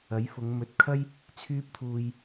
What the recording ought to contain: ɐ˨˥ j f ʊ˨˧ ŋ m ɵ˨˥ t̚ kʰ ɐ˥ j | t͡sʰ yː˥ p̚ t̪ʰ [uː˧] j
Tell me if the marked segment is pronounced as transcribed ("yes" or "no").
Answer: yes